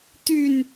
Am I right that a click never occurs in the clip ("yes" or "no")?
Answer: yes